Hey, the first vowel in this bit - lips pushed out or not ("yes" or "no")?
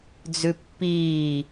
yes